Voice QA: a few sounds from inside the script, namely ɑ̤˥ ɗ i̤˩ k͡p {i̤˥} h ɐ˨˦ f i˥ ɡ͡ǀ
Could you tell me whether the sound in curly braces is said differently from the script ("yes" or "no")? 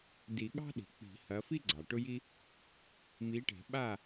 yes